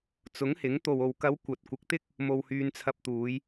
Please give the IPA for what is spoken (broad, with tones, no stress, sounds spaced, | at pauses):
t͡s ʊ˨˥ ŋ h ɪ˨˥ ŋ t̪ o˨ w o˨ w k ɐ˨˧ w kʷ ɐ˨ t̚ kʷ ɪ˨˥ k̚ t̪ ɪ˥ k̚ | m o˧ w h yː˧ n t͡sʰ ɐ˧ p̚ t̪ uː˨˧ j